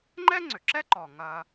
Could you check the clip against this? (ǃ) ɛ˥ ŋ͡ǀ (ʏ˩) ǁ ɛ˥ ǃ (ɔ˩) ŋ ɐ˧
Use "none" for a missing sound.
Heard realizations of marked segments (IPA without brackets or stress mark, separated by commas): ŋ͡ǃ, ʏ˩, ɔ˩